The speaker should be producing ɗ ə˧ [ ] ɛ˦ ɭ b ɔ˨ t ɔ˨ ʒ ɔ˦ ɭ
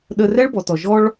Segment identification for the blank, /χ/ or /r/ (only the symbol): r